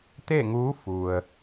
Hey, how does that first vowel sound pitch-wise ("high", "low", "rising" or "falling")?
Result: falling